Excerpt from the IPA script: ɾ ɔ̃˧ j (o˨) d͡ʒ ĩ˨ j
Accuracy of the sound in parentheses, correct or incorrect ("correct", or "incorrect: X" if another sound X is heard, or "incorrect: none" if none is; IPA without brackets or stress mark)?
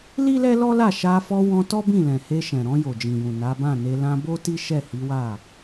correct